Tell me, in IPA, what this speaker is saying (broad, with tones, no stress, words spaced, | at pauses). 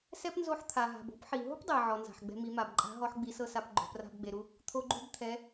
sɛ˥pnzo˧˥ħt̪ʰa˩ ɦa̤˩bo̤˧˥pħi˩ ɦo̤˥pdˤe˩ ʕɔ˩nza̤˩ħɡ͡bɛ̤˧ mi˩˧ma˩bǃʼa̤˧˥ɦɔ˧˥ħ ɡ͡bi˧˥sɤ˥sa˧˥p ɡ͡ǃo̤˧pra̤˥bɡ͡be˧ɾu˥ | t̪ʰo˥ɡ͡ǃu˥bt̪ʰɛ˧˥